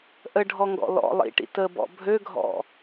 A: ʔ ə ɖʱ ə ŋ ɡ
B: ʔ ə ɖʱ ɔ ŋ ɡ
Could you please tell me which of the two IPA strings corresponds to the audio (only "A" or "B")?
B